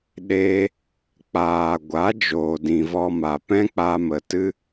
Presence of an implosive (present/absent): present